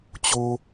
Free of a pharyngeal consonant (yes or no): yes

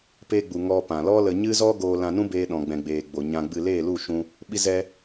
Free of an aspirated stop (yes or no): yes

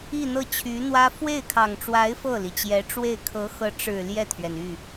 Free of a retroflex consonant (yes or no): no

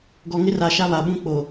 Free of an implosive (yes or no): no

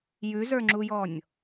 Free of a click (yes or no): no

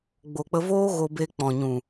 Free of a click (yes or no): yes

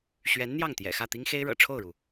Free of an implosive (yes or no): yes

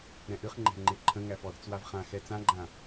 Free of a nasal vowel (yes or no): no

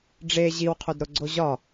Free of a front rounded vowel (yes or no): yes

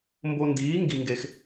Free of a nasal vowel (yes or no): yes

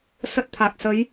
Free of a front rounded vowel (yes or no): yes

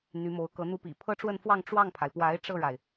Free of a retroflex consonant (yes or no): no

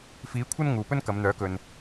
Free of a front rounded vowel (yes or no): no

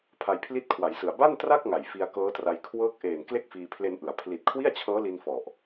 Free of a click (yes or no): yes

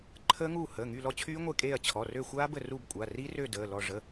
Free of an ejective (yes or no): no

